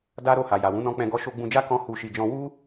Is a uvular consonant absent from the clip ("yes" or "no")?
yes